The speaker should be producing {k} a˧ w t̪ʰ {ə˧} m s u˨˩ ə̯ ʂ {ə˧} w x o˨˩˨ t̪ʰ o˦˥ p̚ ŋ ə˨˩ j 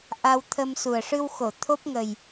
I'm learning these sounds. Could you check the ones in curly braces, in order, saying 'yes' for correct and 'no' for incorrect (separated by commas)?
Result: no, yes, no